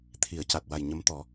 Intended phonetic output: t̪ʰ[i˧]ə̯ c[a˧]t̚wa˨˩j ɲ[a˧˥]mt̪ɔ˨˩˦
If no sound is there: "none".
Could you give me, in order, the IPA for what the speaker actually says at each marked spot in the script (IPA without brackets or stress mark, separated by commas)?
i˨˩˦, a˨˩, ə˧˥